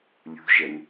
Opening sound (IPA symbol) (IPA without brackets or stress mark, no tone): lʲ